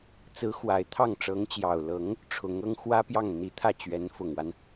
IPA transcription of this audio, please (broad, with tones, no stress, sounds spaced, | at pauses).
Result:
t͡s ɹ̩˧˥ x w a˨˩ ɪ̯ t̪ʰ ɑ˥˩ ŋ ʈ͡ʂ ɤ˧˥ ŋ t͡ɕ j ɑ˨˩ ʊ̯ l ɤ˧˥ ŋ | ʈ͡ʂʰ ʊ˧˥ ŋ ɤ˥ ŋ x w ä˥ p j ɑ˥˩ ŋ n̪ i˧˥ t̪ʰ ä˥˩ t͡ɕ ɥ ɛ˧˥ n f ʊ˨˩ ŋ w a˦ n